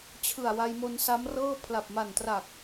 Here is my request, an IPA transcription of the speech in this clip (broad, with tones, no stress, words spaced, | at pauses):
t͡ɕʰɯ˨˩a̯wa˧jmo˧n sa˦˥mrɤː˥˩ pʰla˨˩p̚ma˨˩ntra˨˩k̚